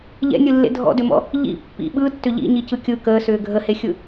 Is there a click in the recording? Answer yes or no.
no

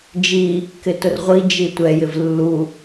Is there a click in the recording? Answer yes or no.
no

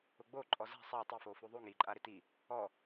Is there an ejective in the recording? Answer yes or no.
yes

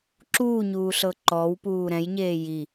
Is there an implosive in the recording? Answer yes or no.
no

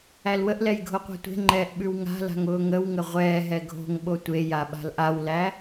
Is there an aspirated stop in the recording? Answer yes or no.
no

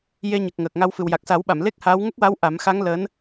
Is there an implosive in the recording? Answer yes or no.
yes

